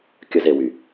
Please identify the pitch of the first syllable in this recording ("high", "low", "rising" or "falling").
high